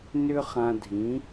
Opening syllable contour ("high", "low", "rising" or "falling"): high